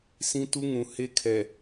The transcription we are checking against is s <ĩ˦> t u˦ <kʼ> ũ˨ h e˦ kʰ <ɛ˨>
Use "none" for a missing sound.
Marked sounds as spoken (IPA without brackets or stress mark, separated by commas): ĩ˦, ŋ, ɛ˨